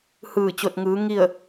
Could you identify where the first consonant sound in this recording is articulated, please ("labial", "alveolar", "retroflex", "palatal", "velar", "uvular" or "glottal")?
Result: glottal